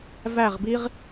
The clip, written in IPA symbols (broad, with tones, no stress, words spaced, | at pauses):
væ˦˨ʁbi˦ʁ